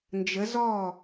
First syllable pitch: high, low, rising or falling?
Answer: rising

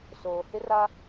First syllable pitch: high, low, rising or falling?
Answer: low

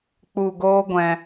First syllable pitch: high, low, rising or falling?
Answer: low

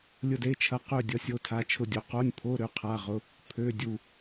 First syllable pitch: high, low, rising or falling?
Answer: falling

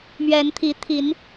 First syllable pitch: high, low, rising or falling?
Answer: rising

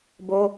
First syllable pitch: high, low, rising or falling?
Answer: high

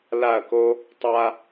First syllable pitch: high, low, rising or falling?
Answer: falling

